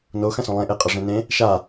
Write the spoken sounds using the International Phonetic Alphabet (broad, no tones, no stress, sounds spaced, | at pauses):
n o x ɐ̃ s õ lˠ ẽ ʔ e qʼ ɐ ʐ ẽ n ẽ | ʃ a